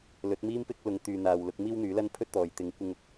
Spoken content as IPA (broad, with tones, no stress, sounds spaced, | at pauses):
l ɵ˨˥ t̚ m iː˥ m p ɪ˥ k̚ l ʊ˨˧ ŋ t̪ yː˨ n̪ aː˨ w l ʊ˧ k̚ m iː˥ w n̪ yː˨˥ l ɐ˥ n pʰ ɵ˥ t̚ t̪ ɔː˨ j t̪ ɪ˧ ŋ kʷ ɪ˥ ŋ ʊ˨˥ k̚